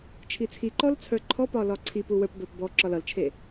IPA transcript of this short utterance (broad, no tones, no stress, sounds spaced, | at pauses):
t͡ʃʰ i t͡sʰ i ǃ ɔ l t͡sʰ ə˞ ǃʰ ɔ p ɒ l ɒ ǀʰ i p u w ə˞ p b ə˞ p b ɔ ǁ ɒ l ʌ l t͡ʃʰ e